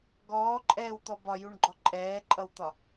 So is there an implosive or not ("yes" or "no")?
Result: no